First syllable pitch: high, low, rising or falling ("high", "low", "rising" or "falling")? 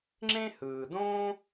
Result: high